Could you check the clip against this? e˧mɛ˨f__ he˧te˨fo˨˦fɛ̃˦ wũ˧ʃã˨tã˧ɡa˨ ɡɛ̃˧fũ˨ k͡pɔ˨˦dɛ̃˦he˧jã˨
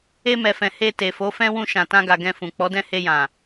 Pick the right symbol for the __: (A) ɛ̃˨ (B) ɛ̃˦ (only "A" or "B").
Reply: A